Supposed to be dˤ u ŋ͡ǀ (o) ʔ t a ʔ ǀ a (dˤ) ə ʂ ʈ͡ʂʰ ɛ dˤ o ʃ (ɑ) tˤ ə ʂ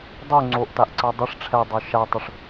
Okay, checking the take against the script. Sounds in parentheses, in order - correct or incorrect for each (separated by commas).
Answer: correct, correct, incorrect